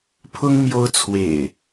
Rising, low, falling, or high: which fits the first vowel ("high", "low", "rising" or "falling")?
high